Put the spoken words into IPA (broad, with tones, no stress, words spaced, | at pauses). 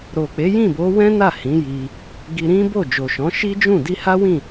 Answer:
ɾo˨k͡pe˨˦ jĩ˦˨bo˨˦ wɛ̃˦na˦˨ hĩ˨˦ji˧ | ɡi˧ɾĩ˦bo˦˨ d͡ʒo˨ʃɔ̃˨˦ ʃi˦d͡ʒũ˦˨ di˧ha˦wĩ˦˨